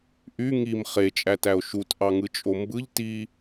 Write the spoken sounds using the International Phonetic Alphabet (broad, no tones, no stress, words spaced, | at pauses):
ʔy ŋim χet͡ʃʼætæo̯ ʃutʔɑŋɯt͡ʃʼo mbɯʎ ti